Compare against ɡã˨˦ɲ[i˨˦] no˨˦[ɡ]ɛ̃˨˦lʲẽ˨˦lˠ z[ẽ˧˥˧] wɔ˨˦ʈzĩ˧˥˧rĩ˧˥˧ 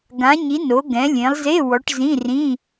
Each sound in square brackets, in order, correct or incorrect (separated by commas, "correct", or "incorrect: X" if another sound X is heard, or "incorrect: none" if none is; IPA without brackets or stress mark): correct, correct, incorrect: e˧˥˧